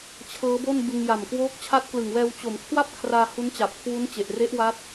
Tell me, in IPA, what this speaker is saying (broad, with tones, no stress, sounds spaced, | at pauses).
t͡ɕʰ ɤː˦˥ b o˥˩ n b ɯ˧ ŋ j a˨˩ m k w oː˦˥ k̚ t͡ɕʰ a˦˥ t̚ k l ɯ˨˩ ŋ w ɛː˧ w t͡ɕ o˩˦ m kʰ w a˥˩ p̚ kʰ r aː˧ h u˦˥ n t͡ɕ a˨˩ p̚ kʰ w u˦˥ n t͡ɕ e˨˩ ʔ r e˦˥ ʔ w a˦˥ t̚